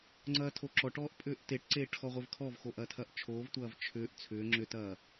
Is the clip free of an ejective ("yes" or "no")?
no